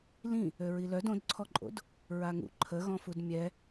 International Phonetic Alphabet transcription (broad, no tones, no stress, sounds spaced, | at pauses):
l ĩ | ø ɹ i l œ d õ d ǀʰ ɔ ǃʼ o̰ d | ɹ a ŋ ṵ ǃʰ ə ɣ ɔ̃ f u d mʲ ɛ